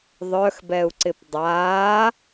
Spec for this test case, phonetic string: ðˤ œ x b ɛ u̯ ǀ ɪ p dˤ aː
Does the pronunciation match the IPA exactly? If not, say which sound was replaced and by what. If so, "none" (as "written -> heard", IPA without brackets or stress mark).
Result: none